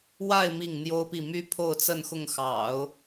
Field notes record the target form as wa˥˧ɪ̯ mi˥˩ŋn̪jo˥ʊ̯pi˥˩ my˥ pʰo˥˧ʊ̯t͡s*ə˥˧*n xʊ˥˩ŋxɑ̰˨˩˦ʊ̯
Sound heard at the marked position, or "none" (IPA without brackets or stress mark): ə˥˧